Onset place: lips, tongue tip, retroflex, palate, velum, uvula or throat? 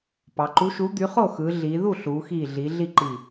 lips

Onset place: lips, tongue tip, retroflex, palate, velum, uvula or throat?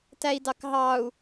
tongue tip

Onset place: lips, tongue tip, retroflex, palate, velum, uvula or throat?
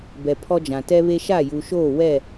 lips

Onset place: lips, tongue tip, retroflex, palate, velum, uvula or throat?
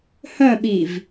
throat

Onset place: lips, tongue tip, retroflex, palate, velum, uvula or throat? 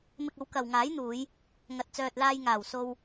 lips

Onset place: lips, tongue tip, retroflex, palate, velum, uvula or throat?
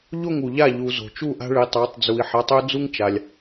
palate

